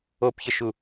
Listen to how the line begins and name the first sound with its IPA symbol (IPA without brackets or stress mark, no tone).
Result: o